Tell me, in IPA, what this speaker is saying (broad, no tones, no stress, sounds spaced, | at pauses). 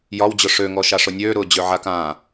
j ɒ w d͡ʑ ʊ ʂ ø ŋ ɔ ʃ a ʂ ʊ nʲ øː ɾ ʊː d͡ʑ ø ʕ a k ãː